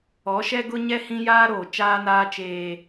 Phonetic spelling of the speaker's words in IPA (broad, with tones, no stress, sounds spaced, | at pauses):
ɔ˨˦ ʃ ɛ˦ ɡ ʊ˦ ɲ ɛ˦ h ĩ˦ j aː˦ ɾ oː˨ t͡ʃ aː˦ n aː˦ t͡ʃ eː˦